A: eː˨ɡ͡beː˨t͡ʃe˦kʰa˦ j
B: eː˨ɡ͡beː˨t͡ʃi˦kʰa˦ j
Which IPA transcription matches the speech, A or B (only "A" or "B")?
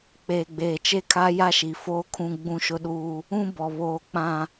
A